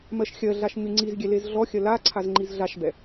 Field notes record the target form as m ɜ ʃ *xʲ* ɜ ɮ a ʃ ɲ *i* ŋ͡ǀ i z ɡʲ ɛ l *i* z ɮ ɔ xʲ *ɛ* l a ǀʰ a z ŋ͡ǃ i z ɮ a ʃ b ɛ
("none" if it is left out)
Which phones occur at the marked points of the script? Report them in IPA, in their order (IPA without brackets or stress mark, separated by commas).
xʲ, y, e, ɜ